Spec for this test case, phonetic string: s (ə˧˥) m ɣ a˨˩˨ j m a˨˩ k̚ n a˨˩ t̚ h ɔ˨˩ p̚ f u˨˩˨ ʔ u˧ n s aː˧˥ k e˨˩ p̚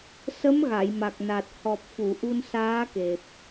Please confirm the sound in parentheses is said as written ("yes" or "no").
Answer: yes